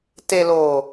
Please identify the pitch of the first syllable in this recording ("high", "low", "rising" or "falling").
low